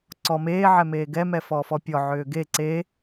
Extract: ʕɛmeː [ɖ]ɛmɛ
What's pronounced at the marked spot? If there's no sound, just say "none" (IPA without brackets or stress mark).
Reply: ɡ